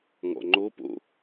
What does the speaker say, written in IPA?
ŋ ɔ̰ ŋ͡ǃ o p o̰

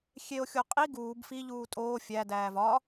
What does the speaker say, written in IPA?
xʲ e o̯ xʲ o qʼ i ɡ uː b f i ʎ uː tʼ oː fʲ æ d æː v ɒ

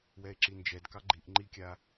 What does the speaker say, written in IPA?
w ɛ e̯ ǁ i n d͡ʒ ɛ d k ɑ ɡ͡ǃ i ʔ ŋ͡ǃ i kʲ a

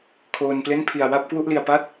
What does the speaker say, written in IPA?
kʰ oː˧ n p l e˥˩ n pʰ i˨˩ a̯ w a˥˩ p̚ k w u˥˩ ʔ l i˨˩ a̯ p a˥˩ t̚

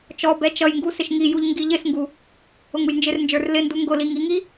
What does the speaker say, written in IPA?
t͡ʃ ɔ b ɛ t͡ʃ ʌ j ŋ ɡ u s ɪ ʃ ŋ i j u ʎ ŋ ɡ i ʎ ɪ s ŋ ɡ u | ʊ ŋ u j n d͡ʒ ɪ r n d͡ʒ ə˞ r l ɪ n d u ŋ ɡ ʊ l i ŋ i ŋ i

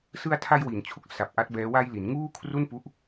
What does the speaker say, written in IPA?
s ɯ˧ a̯ tʰ a˧ j w i˩˦ n t͡ɕʰ u˦˥ k̚ s a˨˩ p̚ ʔ a˦˥ t̚ b ɛː˦˥ w a˧ j l i˩˦ n ŋ uː˥˩ kʰ r u˥˩ n p u˦˥ ʔ

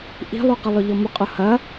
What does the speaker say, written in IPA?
ʔ i̤ lˠ u q ɐ lˠ ʊ ʎ ɔ m ʊ qʼ ʊ h ɐ

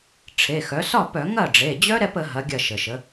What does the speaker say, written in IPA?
ʈ͡ʂʰ e˩˧˩ x œ˩˥ s ɒ˥˩ p œ˧˩˧ ŋ ɐ˥˩ ɖ͡ʐ e˩˧˩ d͡ʑ œ˦˥ ɾ ɛ˦˥ p ə˩˥ ɦ ɐ˩˥ ɡʲ ɐ˥˩ ʃ ə˩ ʃ ə˩˥

